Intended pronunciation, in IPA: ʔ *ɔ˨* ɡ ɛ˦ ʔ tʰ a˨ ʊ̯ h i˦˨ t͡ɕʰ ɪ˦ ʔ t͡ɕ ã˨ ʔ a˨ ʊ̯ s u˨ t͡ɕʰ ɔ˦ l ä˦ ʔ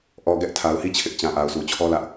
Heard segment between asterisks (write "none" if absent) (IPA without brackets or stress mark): ɔ˨